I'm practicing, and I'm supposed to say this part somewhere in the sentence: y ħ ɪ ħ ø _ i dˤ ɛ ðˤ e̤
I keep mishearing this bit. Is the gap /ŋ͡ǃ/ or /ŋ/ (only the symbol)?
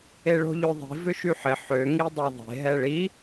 ŋ